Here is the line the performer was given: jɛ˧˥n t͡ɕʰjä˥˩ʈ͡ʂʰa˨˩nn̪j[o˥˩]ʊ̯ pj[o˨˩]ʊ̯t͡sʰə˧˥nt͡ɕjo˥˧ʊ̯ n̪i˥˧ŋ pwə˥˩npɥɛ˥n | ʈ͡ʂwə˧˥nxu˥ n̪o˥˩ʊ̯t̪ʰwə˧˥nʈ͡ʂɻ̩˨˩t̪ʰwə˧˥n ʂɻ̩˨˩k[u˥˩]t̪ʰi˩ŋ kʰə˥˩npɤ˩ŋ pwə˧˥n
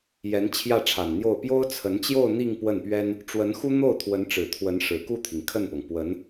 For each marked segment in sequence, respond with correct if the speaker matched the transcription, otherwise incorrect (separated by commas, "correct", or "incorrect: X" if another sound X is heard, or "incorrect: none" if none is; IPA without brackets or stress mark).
correct, incorrect: o˥, correct